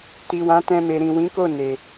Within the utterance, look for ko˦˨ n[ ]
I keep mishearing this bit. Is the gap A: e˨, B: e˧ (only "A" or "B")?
A